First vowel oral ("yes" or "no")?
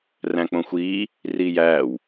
no